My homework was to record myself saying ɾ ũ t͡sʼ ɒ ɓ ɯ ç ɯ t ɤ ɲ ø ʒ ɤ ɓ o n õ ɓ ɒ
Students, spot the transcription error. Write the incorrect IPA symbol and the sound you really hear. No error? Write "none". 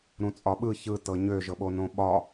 none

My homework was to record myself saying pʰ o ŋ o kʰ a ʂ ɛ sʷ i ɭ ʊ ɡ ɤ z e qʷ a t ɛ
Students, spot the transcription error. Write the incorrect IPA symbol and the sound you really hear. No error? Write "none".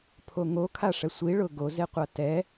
ɤ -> o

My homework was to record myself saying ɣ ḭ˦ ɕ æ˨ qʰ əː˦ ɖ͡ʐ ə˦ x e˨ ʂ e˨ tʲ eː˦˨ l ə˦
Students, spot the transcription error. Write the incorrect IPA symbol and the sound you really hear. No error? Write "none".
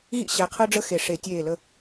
none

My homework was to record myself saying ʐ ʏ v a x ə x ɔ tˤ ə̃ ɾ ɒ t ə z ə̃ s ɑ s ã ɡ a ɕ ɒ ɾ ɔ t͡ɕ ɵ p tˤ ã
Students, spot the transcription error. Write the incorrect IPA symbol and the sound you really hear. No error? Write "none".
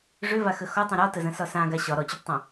ɑ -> ɒ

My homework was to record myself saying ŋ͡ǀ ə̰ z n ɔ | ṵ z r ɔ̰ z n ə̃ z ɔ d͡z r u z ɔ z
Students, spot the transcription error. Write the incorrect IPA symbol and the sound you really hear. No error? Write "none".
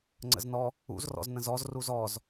d͡z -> z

